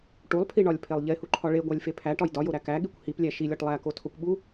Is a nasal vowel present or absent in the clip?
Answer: absent